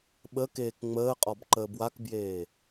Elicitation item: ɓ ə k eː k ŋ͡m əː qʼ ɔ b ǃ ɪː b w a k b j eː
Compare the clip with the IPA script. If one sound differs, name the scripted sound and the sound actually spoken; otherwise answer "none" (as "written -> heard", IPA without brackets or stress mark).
ɪː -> əː